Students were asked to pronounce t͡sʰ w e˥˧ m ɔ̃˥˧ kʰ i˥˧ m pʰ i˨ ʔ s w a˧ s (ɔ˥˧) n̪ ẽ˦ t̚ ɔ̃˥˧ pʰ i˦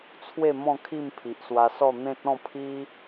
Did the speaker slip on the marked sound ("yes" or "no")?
no